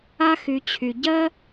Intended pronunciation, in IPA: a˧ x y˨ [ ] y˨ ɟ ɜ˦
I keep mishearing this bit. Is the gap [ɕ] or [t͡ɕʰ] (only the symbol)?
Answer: t͡ɕʰ